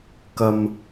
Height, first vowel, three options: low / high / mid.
low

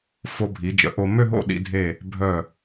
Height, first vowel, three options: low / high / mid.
mid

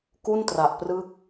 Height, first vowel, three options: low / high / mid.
high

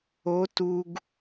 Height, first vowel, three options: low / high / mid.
mid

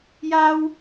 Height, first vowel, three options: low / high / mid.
low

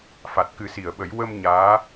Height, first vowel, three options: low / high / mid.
low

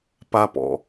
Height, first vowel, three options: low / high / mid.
low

